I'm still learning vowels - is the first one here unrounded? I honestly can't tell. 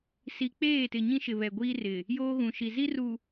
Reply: yes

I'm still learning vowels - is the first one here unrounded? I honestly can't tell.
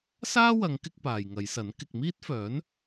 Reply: yes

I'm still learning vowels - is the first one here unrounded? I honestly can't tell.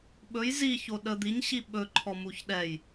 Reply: no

